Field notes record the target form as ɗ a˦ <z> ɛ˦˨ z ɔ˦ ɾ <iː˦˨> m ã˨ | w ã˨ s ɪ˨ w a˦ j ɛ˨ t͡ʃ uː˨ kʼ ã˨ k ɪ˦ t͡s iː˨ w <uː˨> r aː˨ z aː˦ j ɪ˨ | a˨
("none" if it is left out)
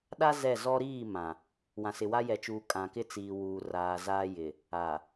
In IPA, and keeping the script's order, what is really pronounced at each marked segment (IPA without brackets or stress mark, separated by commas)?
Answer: z, iː˦˨, uː˨